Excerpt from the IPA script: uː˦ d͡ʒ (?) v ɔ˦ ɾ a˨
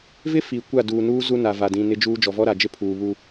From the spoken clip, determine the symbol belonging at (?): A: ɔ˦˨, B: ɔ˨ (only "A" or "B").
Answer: B